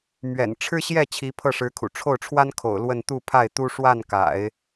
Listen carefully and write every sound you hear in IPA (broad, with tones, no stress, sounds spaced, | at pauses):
m ɥ ɛ̰˨˩ n ʈ͡ʂʰ ɻ̩˥ ɕ j ɛ˥˩ t͡ɕʰ i˧˥ pʰ ɤ˥˩ ʂ ɻ̩˧˥ kʰ ṵ˨˩ ʈ͡ʂʰ o˥˩ ʊ̯ ʈ͡ʂʰ w a˥ n kʰ o̰˨˩ ʊ̯ l w ə˥˧ n t̪ u˥˧ pʰ a˥˩ ɪ̯ t̪ u˥ ʂ w a˥˩ n k a̰˨˩˦ ɪ̯